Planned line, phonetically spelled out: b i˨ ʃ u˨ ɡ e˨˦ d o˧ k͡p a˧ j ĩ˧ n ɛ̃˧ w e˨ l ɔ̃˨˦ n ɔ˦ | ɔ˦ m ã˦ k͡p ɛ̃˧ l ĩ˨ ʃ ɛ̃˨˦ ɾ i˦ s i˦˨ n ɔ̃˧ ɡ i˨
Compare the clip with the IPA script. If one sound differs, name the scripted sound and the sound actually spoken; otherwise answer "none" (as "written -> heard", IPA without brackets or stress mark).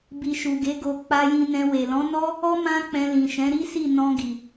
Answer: d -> ɡ